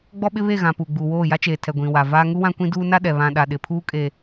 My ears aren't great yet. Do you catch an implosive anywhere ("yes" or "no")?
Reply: yes